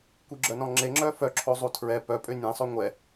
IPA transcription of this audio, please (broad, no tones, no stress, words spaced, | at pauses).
kʷiɡ͡ǁœnɔ̃ŋ͡ǁe ŋ͡ǁœfœǁʰo zˤutʰɹɛ pœ pʼønʲẽsˤø ŋʷɛ